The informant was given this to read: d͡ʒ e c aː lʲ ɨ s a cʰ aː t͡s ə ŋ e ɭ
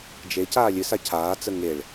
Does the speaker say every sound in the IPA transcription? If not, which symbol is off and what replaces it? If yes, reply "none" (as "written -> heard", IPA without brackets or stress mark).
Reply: none